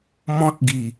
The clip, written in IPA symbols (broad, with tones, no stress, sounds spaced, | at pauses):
m ɔ̃˦ t̚ ɡ i˨˩